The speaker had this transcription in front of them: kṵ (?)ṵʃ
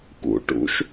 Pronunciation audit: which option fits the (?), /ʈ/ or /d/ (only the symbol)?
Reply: ʈ